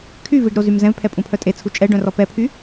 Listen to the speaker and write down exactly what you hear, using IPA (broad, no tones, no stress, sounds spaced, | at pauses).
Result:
kʰ y v i ɖ ɾ o z y m z ɛ̃ v pʰ ɛ pʼ ũ pʰ œ tʼ e t͡sʰ u t͡ʃʼ ɛ ɖ œ̃ r ɔ p ɛ pʰ y